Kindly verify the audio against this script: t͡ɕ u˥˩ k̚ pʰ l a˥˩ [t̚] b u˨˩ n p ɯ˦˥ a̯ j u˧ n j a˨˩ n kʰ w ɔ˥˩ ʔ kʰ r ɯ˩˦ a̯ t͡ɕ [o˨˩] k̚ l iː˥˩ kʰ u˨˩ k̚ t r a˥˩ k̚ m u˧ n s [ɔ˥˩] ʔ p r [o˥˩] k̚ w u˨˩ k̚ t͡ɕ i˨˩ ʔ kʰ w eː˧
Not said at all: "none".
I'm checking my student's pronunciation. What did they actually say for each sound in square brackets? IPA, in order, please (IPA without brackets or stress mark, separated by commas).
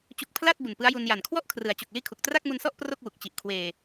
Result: t̚, o˨˩, ɔ˥˩, o˥˩